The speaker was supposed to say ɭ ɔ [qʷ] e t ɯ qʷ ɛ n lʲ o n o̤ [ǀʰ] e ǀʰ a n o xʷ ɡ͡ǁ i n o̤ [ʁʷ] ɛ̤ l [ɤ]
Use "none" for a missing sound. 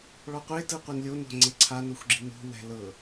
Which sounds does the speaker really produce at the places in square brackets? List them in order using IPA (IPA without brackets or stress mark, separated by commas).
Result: qʷ, ŋ͡ǀ, w, ɤ